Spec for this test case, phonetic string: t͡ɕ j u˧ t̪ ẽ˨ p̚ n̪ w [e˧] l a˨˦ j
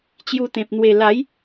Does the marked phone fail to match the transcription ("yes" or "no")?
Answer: yes